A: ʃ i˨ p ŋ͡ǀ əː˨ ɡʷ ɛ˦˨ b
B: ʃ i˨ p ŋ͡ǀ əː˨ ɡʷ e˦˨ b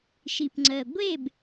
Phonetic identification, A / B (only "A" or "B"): B